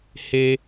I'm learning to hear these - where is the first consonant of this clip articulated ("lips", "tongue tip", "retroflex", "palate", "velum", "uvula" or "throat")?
throat